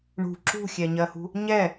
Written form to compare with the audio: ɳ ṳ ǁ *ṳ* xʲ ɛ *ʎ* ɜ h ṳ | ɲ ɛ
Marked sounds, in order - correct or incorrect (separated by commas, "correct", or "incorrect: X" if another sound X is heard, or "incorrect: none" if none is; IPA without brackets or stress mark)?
correct, incorrect: ɲ